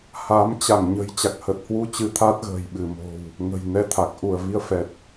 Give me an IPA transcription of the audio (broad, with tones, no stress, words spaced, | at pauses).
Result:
ha˨˦m t͡ɕa˧˩ŋɲə̤˨˩j t͡ɕa˨˩k̚hə˨˩t̚hwu˧t͡ɕɨ˨˦ t̪ʰa˦˥t̚ɣə̤ː˨˩jɓɨ˧˩mo̤˨˩w | ŋə̤˨˩jnɛ˧t̪ʰa˨˩k̚ ʔu˧˩ə̯vi˧ə̯fɛ˨˩t̚